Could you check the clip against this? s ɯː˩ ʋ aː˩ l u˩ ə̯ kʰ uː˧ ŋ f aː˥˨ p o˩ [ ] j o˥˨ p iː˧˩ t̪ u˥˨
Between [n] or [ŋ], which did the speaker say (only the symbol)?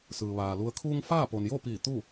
n